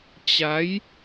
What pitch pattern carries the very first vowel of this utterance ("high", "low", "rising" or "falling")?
rising